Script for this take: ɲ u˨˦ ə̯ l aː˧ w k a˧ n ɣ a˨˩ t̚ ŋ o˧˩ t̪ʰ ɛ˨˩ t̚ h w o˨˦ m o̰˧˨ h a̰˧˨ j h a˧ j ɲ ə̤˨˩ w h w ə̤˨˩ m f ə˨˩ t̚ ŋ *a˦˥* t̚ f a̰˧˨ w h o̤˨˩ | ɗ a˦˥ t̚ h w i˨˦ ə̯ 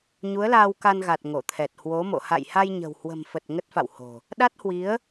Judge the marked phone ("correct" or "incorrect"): incorrect